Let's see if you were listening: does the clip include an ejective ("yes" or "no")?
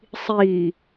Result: no